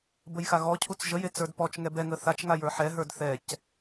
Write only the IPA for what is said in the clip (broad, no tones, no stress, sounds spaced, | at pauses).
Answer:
b ə j x a ɣ ɔ cʰ u t͡s ʒ ə j e t͡s ə˞ d p ɔ t͡ʃ ŋ ɛ b ɛ ŋ ə θ a t͡ʃ ŋ a j ə˞ ħ ɛ ɦ ə˞ d θ ɛ c